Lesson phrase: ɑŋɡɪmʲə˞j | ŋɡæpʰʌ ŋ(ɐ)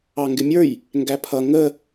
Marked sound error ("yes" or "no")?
yes